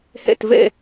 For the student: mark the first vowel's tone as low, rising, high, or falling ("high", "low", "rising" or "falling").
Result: falling